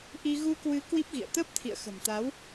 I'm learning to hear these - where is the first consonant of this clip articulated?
throat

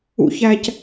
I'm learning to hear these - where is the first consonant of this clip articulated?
palate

